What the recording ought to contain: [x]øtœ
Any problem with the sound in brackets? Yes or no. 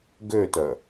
yes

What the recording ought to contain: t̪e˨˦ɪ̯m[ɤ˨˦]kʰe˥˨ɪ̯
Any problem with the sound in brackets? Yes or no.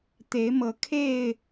no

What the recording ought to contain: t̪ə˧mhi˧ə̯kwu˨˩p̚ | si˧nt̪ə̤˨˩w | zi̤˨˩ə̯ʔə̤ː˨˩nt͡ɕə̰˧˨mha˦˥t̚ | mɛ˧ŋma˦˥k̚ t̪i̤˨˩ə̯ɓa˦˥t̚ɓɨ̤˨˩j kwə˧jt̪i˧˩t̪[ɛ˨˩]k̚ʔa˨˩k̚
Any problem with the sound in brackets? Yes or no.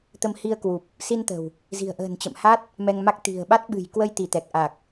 no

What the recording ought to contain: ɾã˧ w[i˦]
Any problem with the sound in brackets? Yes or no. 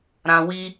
no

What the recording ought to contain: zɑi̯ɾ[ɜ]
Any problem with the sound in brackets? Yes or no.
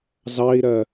no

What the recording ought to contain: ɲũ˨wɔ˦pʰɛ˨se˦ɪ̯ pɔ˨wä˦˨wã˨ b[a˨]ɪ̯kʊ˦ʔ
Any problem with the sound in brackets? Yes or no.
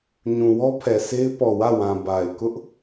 no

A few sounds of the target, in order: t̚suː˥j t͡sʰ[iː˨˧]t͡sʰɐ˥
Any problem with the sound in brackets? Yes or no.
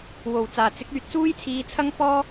yes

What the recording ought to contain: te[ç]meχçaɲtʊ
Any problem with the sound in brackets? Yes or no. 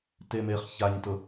yes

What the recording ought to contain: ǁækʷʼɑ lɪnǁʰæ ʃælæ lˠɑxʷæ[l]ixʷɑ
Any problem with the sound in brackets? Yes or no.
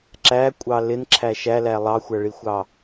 yes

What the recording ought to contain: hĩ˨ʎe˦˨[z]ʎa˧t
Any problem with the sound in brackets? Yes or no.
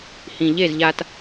no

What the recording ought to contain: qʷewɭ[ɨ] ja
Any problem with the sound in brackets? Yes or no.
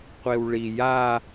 yes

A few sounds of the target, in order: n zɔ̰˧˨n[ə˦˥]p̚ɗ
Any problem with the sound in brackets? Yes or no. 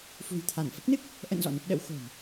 no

